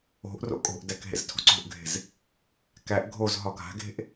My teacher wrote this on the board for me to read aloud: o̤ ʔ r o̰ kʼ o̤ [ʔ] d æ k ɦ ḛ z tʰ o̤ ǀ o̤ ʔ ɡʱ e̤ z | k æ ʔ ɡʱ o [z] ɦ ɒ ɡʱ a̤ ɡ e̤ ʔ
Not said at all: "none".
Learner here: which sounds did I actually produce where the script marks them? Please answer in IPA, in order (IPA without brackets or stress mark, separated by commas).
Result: ʔ, z